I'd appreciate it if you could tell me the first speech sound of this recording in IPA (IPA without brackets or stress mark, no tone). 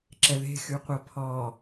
ǁ